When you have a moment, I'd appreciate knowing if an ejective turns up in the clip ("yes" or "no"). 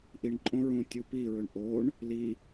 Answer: yes